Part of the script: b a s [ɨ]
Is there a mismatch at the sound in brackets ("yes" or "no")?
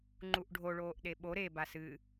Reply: no